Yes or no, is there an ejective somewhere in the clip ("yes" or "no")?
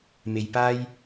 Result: no